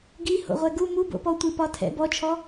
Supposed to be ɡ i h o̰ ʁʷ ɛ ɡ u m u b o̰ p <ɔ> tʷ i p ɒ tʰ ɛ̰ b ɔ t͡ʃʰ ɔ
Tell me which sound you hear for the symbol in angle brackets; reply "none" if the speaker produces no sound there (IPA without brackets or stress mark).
ɔ